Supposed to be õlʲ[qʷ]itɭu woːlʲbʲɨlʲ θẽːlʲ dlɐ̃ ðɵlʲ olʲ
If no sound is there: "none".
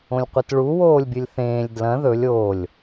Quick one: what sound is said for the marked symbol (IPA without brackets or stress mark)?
qʷ